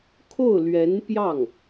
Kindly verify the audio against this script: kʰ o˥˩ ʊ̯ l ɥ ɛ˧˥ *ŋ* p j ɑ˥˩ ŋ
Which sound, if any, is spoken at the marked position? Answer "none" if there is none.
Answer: n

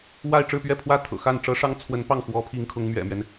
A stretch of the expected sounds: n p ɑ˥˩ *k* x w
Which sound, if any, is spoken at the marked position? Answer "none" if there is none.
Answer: ŋ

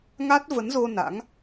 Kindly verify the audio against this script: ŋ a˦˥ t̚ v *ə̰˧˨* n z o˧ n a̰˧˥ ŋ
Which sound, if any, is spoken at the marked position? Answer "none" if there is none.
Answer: ə˨˦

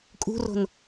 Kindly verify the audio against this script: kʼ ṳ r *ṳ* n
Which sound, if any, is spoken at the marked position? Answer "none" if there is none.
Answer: o̤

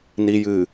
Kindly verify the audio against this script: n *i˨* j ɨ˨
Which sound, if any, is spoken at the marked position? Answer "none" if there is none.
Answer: i˨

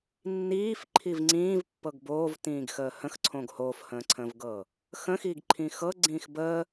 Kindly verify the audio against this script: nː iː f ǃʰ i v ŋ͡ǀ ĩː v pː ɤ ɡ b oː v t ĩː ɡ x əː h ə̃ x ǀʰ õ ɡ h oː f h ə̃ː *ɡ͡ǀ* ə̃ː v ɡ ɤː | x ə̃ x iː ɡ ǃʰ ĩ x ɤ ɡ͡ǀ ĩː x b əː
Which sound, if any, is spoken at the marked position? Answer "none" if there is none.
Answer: ǀʰ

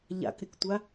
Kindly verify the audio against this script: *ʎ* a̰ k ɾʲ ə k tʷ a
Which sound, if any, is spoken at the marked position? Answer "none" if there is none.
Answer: ʎ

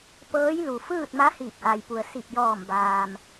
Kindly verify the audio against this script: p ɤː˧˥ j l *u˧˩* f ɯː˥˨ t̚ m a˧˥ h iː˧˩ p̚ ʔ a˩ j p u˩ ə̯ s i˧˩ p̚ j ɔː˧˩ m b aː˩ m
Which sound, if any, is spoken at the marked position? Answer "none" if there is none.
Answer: u˩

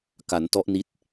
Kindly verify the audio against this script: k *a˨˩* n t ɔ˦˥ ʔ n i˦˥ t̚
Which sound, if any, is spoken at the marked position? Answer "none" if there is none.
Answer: a˩˦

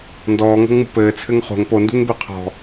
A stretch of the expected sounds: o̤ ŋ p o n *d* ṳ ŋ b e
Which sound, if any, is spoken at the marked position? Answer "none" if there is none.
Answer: d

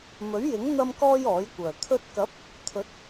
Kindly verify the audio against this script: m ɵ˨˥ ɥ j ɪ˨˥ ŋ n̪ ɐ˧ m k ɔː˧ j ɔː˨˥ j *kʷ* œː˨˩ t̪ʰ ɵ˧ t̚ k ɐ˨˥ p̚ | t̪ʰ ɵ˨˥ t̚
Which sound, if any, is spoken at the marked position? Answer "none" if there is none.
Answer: kʷ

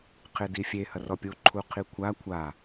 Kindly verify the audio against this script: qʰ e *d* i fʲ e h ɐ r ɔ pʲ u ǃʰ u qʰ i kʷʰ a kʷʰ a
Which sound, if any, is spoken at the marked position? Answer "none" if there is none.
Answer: d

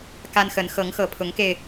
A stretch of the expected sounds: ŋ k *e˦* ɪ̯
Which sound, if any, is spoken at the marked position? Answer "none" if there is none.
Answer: e˧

